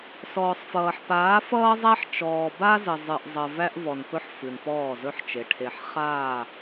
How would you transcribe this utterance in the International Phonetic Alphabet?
sɔː˨sˤfʌː˨ħ paː˨˦fʌː˦zˤæ˦ħ t͡ʃɔː˨ba˦zə˨ zˤɨ˨ʔzˤə˨ væ˦ʔvɔ˨npɵ˦ħ fɨ˨npɔː˦˨zɵ˦ħt͡ʃe˨ ʈʰe˨ħχaː˦˨

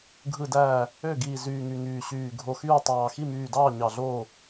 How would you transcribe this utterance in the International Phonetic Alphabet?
ɡʱɯ˧˩dæː˧˩ | ø˥˩ɡiː˧˩ zyː˧˩ŋy˧˩ ŋyː˧˩ɕyː˧˩ ɡʱo˧˩xyː˥˩tˤɑː˧˩ xi˥˩myː˧˩dɑː˥˩ ɲɑ˧˩ɮoː˥˩

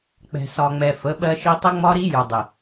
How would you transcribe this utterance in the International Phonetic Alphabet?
k͡pɛ̤˨sɒ˨ŋ͡mɛ˨ fə˨˦ɓɜ˦ʃi˦ tˤə˦ŋ͡mɒ˦ɾi˦ jʊ˨ dˤɪ˨

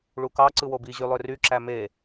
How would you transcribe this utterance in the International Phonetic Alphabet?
ɭukɑ ǀɯwobi ʑylˠøry ǁæme

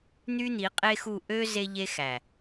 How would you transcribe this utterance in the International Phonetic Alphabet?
n̪y˦n̪i˨˦ qʼe˦xu˦˨ ʔø˦ ze˦ʎe˦xæ˨

